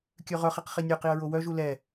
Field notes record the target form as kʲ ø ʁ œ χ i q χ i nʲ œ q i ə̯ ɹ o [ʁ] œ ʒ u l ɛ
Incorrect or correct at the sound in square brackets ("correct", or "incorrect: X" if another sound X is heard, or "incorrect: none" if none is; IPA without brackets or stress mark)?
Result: incorrect: w